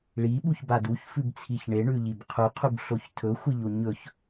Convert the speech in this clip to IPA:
ɭ i ɓ u ç b a d u ç f ʉ b t͡sʰ i ç ɳ e ɳ ʉ ʎ i b qʰ u qʰ u b ɬ o ç tʰ ɵ xʷ ɨ ʎ o ɲ ɵ ç

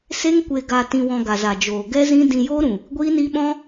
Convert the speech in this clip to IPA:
s e˦ ŋ kʷ e˧ ɡ a˧ t ĩ˧ w ɔ̃˧ ɡ a˨ z a˨ d͡ʒ oː˨ ɡ ɛ˦ z ĩ˦ d ĩ˧ j oː˦ ɾ ũ˨ | ɡʷ iː˦ n iː˦ ɓ ɔ̃˦

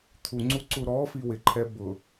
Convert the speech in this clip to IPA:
t̪ʰ u ŋ͡ǀ u ǀ u ɾ ɔ f i w ɪ ǃʰ ɛ b ʊ

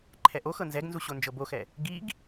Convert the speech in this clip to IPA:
ǃʰ ɛ ʔ o x ɤ n z ɛ ɡ n z u ɕ o n d͡ʒ ɤ b o x ɛ | ɡ i ɡ

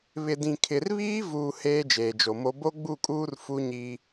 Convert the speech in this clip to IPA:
β ɪ˨ d ĩ˨ kʰ ɪ˨ r β iː˦ v uː˨ h eː˦ d͡ʒ eː˨ d͡ʒ o˨ m o˦ b o˦ ɡ͡b u˦˨ kʼ uː˦ r f u˦ ɲ i˦

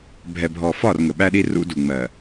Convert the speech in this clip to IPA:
bʱ ɛ˨ bʱ ɔ˨ f ɒ˦˨ r ŋ ə˨ ɓ æ˦ ɗ i˦ r ṵ˦ d u˨ ŋ͡m ɜ˨

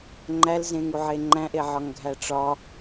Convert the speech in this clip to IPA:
ŋ͡ǃ æ l z ẽ ŋ u ʕ e ŋ͡ǃ æ̃ ʔ e ʕ ɒ ŋ ɡʱ æ ʈ͡ʂ ɒ

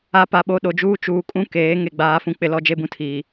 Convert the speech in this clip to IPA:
a˨ p a˨ ɓ o˨ ɗ o˨ d͡ʒ uː˦ t͡ʃ uː˨ kʼ ũ˦ k eː˨˦ ŋ e˨ ɡ͡b aː˨˦ f ũ˨ k͡p ɪ˨ l ɔ˦ d͡ʒ e˦ b ũ˦ tʰ iː˨

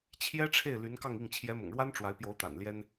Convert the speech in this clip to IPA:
t͡ɕʰ j ɛ˥ ʈ͡ʂʰ e˥˩ ɪ̯ l y˧˥ n k ɑ˥˧ ŋ i˥˩ ŋ t͡ɕʰ j ɛ˧˥ m ʊ̰˨˩ ŋ ɻ w a˥ n ʈ͡ʂ w a˧˥ ɪ̯ p j o˧˥ ʊ̯ t̪ a̰˨˩ n l j ɛ˥ n

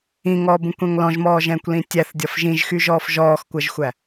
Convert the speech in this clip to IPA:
ĩ ŋ ɔː b ũ kʷ ɛ̃ ŋ l ɔ̃ ʒ m ɔː ʒ ɛ̃ː kʷ l ĩ tʲ æ θ dʲ ɒ f ʒ ĩ ʒ x y ʒ ɔː f ʒ ɔː x kʷ ɜ ʒ xʷ æ

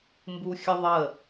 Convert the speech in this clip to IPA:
m b u xʲ ə ðˤ ə

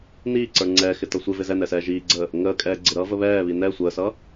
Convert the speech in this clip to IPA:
n iː ǀ ə˞ ŋ͡ǀ ɛː x ɪ t ʌ sʷ ɪ v ɪ z ɛ n ɛ s ɛː ʒ iː ɡ͡ǀ əː | ŋ əː kʼ ɛː ɡ͡ǀ ɪ ɾ ʌː v ə β ɛː β i n ɛ sʷ əː s ʌː

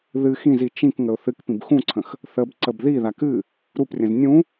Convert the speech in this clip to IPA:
ð ɨ x ĩ z i t͡ʃ ĩ k ŋ ə ʊ̯ θ ɨ k p ĩ b x ũ ǀʰ ə̃ x | θ ə b ǀ ə b ð i ð a k ɨ | ɾ u p rʲ ə̃ z nʲ ũ

